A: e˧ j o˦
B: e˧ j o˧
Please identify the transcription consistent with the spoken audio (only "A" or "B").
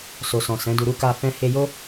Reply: A